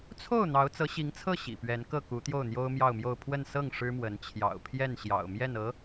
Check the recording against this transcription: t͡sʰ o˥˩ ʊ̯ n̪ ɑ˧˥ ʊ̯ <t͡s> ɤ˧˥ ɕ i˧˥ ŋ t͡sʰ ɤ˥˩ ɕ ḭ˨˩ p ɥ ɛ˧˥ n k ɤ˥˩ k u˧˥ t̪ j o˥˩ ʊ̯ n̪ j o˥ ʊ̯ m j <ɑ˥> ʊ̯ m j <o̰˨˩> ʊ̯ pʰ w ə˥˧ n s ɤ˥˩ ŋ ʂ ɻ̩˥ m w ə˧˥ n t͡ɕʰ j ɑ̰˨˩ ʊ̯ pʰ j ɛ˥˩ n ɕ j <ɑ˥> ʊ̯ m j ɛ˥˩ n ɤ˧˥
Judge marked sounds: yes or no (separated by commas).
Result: yes, no, no, no